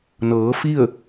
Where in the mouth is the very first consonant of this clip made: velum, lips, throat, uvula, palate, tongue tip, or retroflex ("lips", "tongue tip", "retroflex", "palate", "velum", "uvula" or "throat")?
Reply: tongue tip